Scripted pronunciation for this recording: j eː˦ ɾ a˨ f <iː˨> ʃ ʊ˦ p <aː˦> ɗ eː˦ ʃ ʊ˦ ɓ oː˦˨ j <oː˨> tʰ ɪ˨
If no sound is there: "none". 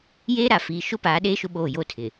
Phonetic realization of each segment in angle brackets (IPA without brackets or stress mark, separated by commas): iː˨, aː˨˦, oː˦